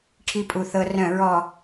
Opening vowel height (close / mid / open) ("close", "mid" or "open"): close